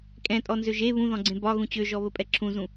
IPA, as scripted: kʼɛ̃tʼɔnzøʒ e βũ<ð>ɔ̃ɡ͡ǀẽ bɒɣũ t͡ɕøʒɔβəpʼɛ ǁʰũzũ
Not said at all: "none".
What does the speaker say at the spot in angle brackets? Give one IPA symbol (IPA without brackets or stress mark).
ð